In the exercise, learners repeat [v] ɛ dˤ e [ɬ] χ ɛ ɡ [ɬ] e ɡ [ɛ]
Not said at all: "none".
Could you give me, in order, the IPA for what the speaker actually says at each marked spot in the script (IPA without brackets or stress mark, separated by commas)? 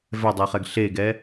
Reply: v, none, ɬ, ɛ